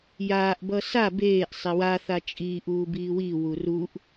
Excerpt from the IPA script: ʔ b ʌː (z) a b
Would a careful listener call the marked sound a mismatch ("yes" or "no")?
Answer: yes